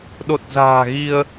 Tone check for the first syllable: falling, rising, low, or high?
low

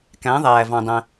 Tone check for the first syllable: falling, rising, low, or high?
rising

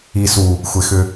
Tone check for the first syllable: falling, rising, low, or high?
low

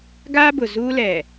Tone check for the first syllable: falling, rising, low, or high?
high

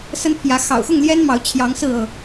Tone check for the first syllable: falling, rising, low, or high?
high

